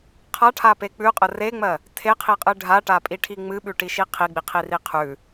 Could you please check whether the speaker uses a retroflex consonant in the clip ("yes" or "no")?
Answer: yes